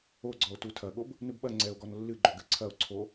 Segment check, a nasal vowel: absent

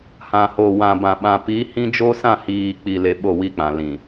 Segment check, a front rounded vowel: absent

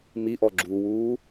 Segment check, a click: present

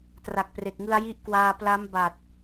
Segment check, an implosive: absent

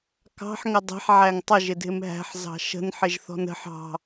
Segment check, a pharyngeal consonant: present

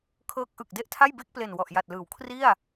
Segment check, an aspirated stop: present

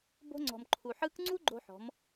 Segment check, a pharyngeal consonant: present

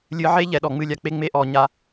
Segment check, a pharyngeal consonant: present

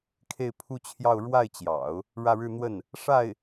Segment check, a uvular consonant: absent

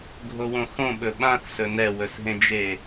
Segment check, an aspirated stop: absent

